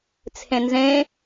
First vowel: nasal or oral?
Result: nasal